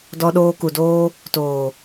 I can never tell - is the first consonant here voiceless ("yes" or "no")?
no